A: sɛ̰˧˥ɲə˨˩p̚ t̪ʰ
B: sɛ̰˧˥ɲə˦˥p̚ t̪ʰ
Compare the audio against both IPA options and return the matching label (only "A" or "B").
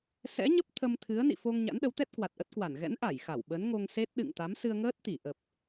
B